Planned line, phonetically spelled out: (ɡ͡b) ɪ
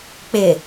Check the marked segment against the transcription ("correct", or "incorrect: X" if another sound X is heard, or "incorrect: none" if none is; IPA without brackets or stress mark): incorrect: k͡p